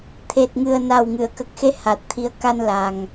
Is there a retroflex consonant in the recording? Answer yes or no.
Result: no